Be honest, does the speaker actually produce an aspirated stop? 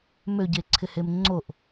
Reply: yes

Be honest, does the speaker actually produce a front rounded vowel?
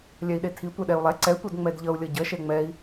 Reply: no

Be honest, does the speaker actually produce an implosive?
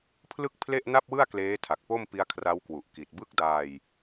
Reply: no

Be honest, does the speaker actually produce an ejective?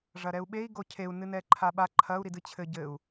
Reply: no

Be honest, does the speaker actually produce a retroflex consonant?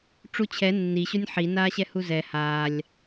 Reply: yes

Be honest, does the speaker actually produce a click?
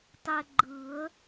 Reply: yes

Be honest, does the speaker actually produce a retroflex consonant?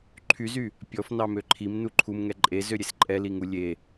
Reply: no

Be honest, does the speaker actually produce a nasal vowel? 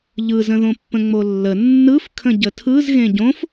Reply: yes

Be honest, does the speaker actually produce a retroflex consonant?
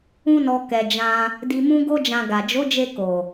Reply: no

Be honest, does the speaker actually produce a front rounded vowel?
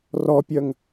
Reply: yes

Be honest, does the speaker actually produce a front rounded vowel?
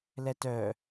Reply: yes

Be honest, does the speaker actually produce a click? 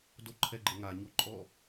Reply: yes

